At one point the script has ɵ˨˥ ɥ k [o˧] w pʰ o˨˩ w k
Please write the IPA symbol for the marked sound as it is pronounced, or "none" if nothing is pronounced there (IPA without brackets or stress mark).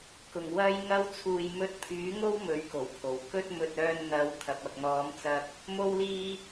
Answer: o˨˩